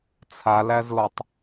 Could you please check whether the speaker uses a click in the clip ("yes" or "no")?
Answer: no